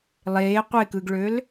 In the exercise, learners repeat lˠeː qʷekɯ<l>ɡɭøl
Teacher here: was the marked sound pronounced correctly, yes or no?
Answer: no